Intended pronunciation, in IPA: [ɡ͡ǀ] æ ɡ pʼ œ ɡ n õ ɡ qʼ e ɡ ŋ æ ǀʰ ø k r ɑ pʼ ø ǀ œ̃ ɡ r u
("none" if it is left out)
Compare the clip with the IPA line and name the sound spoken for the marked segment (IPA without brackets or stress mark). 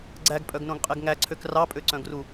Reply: ɡ͡ǀ